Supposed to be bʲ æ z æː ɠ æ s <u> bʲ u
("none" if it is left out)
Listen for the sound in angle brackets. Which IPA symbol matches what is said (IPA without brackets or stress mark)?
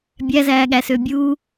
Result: ø